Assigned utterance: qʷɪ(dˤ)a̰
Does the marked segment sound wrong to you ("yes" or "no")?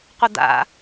yes